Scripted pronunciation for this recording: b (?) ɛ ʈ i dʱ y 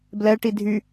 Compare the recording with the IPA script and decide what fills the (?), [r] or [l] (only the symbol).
l